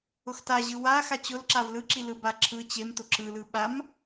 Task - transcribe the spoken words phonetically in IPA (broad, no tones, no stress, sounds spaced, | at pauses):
ʊ x t a ʑ ɯ w a x a t͡ɕ ʊ l ǁ a v l ɯ ǁ i l ɯ b a ǁʰ ɯ t͡ɕ e m t ʊ ǁ ɯ l ɯ ɓ a m